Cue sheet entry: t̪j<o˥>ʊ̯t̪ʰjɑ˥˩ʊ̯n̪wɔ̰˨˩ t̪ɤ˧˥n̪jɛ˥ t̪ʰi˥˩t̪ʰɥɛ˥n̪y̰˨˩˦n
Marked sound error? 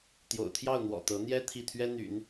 yes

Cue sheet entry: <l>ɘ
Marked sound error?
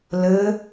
no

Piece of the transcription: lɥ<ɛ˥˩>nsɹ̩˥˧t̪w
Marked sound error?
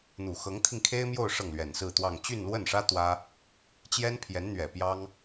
yes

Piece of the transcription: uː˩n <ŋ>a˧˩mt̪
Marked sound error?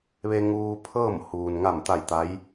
no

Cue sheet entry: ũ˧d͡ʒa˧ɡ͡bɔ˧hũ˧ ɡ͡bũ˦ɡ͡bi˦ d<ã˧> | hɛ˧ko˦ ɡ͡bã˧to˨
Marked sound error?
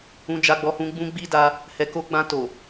yes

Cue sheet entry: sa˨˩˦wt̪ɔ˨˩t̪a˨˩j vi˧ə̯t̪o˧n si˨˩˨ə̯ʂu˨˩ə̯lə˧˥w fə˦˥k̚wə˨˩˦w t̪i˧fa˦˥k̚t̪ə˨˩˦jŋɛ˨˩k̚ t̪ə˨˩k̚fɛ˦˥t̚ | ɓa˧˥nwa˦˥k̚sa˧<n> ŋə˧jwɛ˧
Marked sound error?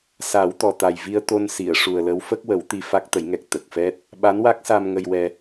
yes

